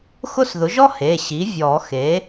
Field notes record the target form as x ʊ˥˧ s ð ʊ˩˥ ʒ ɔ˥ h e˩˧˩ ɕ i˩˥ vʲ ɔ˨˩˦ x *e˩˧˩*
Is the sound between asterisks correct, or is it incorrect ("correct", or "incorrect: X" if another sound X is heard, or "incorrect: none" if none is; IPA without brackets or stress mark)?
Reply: incorrect: e˩˥